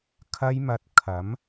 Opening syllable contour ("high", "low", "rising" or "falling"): high